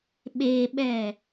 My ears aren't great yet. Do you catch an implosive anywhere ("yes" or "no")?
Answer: yes